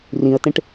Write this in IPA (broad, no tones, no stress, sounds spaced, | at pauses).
r ĩ ə̯ t ẽ ʈ